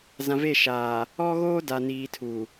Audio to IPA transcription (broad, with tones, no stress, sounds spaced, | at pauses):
z ã˨ v e˦˨ ʃ aː˨ | ɔ˦ ɣ oː˦ d a˨ n iː˨ tʰ u˨